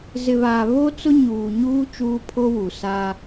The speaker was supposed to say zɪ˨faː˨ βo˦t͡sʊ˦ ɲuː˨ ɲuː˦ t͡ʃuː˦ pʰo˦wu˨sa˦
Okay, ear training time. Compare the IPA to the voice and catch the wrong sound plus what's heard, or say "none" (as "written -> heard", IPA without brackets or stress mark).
f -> β